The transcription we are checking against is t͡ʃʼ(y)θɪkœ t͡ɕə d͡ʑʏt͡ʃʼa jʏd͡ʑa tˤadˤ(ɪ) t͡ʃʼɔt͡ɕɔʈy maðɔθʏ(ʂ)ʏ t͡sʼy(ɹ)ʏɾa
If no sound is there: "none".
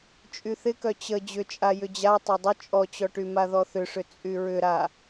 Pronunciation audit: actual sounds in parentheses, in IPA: y, ʏ, ʂ, ɹ

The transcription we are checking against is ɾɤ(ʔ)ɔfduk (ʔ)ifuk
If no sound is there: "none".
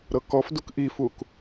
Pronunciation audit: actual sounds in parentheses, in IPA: k, ʔ

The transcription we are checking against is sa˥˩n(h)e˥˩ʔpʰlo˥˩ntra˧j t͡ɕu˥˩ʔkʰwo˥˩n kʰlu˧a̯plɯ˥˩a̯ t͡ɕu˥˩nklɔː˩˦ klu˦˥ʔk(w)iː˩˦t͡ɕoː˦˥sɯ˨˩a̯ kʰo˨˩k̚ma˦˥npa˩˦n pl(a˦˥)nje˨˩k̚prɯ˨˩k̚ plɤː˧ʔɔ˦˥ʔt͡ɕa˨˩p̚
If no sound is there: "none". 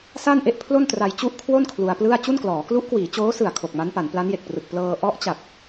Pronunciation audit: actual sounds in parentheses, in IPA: ʔ, w, a˦˥

